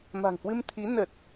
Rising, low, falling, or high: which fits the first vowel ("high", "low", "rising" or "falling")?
low